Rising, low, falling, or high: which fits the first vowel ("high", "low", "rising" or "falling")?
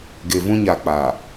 low